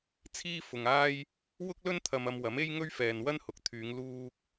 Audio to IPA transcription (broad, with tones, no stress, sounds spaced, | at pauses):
t͡sʰ iː˥ f ʊ˨ ŋ aː˥ j | w ʊ˥ k̚ l ɵ˥ n t̪ʰ ɐ˧ m ɐ˧ m w ɐ˨˥ m e˥ j ŋ ɵ˥ ɥ f ɛː˨ n w ɐ˥ n h ʊ˨˥ k̚ t̪ʰ yː˨˧ ŋ l uː˧ k̚